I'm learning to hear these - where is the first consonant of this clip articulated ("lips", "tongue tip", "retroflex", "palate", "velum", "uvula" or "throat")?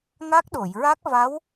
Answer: velum